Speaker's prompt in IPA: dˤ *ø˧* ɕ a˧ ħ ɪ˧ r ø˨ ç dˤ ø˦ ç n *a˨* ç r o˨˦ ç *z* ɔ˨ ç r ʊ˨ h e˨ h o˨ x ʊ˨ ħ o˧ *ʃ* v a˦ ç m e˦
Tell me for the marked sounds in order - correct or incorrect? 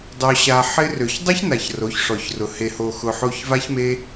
correct, correct, incorrect, incorrect

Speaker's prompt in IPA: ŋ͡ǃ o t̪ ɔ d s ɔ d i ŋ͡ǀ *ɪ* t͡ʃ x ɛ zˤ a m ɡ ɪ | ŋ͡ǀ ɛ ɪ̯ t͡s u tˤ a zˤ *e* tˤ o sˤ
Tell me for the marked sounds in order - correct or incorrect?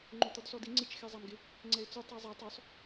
correct, correct

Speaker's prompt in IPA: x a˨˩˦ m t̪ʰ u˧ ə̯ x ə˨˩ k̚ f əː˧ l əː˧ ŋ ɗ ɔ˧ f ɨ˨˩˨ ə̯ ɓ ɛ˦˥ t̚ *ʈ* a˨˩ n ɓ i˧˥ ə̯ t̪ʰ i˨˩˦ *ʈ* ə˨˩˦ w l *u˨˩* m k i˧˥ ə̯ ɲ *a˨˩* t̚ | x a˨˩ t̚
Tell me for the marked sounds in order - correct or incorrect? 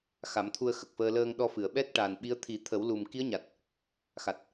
correct, incorrect, correct, correct

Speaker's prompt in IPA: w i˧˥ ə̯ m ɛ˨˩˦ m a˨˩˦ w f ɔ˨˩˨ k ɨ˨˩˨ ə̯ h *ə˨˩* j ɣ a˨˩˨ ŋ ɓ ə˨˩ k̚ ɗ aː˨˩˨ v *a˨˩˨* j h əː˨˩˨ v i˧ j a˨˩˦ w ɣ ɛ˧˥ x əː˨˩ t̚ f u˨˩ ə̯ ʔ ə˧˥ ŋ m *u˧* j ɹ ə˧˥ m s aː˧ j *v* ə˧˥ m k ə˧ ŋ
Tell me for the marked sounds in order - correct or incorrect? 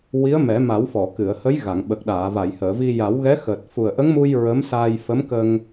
incorrect, correct, correct, incorrect

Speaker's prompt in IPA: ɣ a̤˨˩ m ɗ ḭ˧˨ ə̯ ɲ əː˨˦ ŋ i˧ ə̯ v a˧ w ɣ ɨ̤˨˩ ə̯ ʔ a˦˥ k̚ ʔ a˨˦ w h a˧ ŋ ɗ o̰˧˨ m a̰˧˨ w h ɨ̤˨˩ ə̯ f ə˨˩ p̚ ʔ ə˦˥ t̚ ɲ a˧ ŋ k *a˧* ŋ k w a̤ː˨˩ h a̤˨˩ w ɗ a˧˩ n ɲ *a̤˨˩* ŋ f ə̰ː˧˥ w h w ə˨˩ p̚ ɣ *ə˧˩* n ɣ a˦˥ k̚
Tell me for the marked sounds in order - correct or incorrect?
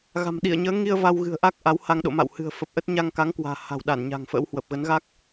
incorrect, correct, incorrect

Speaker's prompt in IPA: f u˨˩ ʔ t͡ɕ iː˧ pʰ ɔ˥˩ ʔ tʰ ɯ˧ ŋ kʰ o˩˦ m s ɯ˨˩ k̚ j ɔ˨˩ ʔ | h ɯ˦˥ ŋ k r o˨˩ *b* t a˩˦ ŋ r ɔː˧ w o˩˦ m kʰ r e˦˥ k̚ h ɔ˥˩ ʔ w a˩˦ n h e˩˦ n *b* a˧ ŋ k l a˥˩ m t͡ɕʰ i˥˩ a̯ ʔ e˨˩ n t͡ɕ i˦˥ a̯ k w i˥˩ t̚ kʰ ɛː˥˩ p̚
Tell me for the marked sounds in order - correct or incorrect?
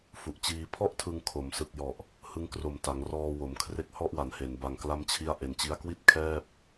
incorrect, correct

